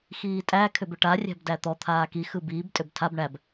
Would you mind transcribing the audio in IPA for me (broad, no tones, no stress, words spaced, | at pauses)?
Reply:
xiːtʼæ kʰʏbʏʈa rʲæ̤bdæt̪ɔ t̪ʰaːki xɯbiːb tʼʏbtʰab ɳæb